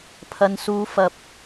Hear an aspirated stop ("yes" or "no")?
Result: yes